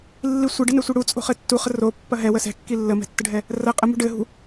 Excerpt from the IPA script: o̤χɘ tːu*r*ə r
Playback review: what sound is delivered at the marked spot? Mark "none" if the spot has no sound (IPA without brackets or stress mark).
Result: χ